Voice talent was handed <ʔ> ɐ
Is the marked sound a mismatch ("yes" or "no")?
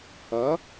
yes